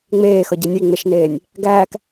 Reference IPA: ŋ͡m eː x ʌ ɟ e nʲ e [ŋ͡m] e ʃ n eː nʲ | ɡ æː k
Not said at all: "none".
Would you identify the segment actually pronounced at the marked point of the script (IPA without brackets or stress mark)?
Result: ŋ͡m